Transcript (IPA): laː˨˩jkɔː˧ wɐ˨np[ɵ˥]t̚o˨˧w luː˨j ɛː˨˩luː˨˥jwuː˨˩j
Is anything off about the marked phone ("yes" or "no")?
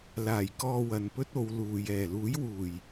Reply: no